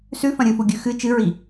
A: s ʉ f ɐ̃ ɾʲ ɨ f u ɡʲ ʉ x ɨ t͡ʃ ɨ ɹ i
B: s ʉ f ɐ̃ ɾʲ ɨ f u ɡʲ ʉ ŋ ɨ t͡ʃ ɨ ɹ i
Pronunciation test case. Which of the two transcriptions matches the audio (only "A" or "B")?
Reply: A